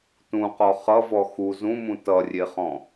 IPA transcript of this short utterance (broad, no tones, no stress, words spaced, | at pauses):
tũqɔ χʌvɔ xu zũmũ tʌrʲeχɔ̃